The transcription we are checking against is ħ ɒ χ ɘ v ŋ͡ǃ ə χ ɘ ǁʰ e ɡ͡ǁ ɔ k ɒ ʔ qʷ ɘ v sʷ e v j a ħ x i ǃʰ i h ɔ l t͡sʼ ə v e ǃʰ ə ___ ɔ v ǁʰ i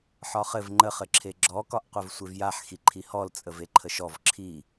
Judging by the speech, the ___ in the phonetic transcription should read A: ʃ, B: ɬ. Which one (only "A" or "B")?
A